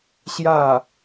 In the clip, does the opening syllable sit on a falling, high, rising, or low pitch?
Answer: falling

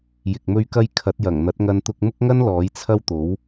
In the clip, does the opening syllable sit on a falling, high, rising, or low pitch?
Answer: low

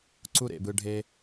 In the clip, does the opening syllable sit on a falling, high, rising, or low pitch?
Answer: high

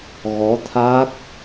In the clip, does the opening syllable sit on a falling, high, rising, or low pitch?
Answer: rising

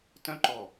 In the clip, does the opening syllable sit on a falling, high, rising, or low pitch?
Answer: high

